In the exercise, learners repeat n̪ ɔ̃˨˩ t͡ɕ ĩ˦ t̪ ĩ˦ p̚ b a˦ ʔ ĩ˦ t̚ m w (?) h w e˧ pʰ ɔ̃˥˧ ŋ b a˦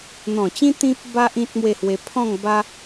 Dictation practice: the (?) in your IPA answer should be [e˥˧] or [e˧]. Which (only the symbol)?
e˥˧